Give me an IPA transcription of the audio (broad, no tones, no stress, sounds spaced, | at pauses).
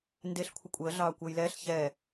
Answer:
n d e ɬ kʷʰ ə kʷʼ əː ɮ ɑː kʷ əː j l ɛː ɬ ç ɛ